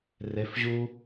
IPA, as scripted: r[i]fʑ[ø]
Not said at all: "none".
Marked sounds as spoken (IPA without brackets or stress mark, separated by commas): e, u